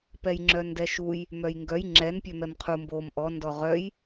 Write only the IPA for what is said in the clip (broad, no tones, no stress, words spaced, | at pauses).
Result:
pɛjŋ͡ǁœndɛʃuj | mœjŋɡœj ŋ͡ǁɛn pʲœmɛmqʰu mbom ʔɔ ndɔʁœj